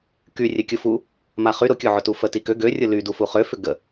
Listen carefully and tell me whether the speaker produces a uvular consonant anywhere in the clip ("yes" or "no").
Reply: yes